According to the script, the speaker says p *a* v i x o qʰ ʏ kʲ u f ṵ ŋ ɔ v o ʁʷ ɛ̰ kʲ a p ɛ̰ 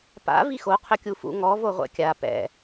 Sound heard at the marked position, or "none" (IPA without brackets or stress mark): a̰